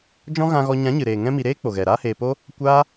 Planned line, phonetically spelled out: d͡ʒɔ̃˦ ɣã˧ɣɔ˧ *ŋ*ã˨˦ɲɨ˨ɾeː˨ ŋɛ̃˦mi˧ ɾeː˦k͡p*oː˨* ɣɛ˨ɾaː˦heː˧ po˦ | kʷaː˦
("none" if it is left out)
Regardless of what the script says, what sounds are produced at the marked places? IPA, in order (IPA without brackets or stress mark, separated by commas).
ɲ, o˨